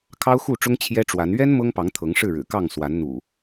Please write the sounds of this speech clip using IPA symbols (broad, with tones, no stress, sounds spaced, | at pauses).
kʰ ɑ˦ ʊ̯ x u˥˨ ʈ͡ʂ ʊ˦ ŋ t͡ɕʰ j ɛ˦ ʈ͡ʂ w a˨˦ n ɥ ɛ˦ n m ɤ˦ ŋ p ɑ˨˦ ŋ t̪ʰ ɤ˨˦ ŋ ʂ ɻ̩˥˨ ɻ ɻ̩˨˩ k ɑ˥˨ ŋ s w a˨˦ n n̪ ṵ˨˩